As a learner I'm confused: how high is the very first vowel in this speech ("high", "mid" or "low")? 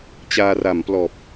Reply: low